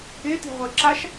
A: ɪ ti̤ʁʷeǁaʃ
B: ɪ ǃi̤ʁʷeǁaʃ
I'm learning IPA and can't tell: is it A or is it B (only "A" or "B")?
A